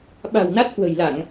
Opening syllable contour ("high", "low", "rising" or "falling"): low